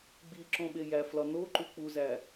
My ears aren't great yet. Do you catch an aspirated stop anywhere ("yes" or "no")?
no